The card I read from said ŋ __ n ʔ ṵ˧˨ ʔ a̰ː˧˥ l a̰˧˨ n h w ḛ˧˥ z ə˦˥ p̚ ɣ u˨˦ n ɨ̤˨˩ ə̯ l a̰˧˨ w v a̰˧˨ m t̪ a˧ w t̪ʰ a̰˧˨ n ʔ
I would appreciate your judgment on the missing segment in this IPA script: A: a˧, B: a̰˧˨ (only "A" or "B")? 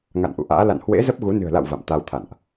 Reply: B